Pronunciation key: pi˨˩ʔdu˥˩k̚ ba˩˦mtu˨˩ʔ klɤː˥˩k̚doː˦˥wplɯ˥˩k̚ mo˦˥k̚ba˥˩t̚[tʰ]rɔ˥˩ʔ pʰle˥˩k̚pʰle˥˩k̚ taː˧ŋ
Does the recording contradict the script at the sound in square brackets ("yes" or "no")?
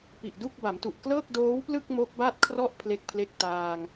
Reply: yes